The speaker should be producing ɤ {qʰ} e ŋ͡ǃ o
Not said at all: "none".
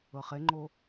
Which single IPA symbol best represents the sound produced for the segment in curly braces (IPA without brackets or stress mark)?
χ